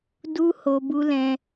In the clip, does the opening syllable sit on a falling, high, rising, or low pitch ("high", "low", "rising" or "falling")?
high